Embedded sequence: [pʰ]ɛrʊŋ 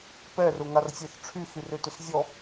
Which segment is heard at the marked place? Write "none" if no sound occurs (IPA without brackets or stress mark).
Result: p